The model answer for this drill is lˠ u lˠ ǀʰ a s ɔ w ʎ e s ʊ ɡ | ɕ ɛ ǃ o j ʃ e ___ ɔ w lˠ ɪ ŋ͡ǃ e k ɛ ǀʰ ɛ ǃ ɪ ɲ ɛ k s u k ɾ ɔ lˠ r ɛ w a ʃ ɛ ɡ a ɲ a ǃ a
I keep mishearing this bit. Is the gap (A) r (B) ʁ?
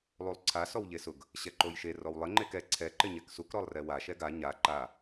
A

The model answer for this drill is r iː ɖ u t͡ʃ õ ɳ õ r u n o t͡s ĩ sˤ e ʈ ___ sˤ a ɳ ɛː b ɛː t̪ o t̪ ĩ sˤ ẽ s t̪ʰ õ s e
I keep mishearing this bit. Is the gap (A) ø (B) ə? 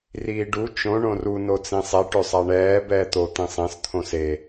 A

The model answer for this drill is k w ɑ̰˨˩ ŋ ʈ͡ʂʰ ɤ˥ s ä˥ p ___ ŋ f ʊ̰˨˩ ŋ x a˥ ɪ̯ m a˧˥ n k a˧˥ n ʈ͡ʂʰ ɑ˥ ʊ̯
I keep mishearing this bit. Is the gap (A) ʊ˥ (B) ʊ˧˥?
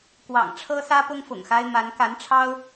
A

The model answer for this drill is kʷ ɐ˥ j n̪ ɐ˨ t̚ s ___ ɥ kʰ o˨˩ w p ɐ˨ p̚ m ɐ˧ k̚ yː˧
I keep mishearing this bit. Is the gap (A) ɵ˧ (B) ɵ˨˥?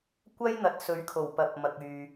B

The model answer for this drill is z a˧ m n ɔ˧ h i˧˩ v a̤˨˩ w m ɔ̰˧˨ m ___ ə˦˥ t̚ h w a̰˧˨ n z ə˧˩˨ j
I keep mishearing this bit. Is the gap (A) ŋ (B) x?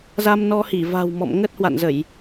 A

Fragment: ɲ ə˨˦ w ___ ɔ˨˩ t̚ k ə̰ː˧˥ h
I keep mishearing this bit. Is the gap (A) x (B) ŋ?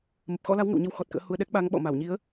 A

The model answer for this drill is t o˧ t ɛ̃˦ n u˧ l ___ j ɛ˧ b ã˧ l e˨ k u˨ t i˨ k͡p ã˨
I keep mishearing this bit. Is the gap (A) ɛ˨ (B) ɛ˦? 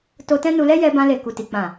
B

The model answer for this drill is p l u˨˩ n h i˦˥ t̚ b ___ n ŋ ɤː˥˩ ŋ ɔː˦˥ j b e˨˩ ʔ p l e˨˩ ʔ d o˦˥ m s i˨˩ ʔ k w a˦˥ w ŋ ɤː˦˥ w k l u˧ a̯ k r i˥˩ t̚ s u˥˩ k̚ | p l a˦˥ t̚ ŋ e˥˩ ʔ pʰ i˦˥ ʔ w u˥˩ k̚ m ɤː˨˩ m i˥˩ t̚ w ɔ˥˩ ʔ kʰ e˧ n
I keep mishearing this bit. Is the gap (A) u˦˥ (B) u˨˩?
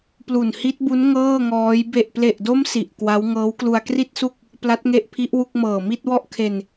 A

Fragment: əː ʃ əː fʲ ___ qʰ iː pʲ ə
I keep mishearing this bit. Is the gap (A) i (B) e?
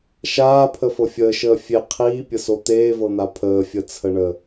B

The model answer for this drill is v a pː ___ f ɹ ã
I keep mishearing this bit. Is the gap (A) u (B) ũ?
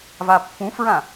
B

